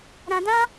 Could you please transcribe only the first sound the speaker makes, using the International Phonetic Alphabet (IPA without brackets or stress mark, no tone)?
ɾ